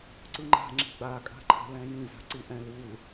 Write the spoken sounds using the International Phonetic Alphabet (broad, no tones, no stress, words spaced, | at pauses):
ǀɯŋ͡ǃa̤ ŋ͡ǁi̤ɡ͡ba kʼa̤ǃʰa̤lɛ̃jĩ za̤ǀiʔɛ̃l ul